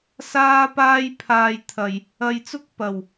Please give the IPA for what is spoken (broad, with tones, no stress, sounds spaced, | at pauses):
s aː˥ p aː˥ j pʰ aː˧ j t̪ʰ ɐ˨ j | ɐ˨ j t͡s ʊ˥ k̚ p ɐ˨˩ w